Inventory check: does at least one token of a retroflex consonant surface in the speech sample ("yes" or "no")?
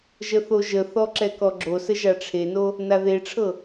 yes